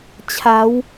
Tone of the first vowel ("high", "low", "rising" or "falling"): rising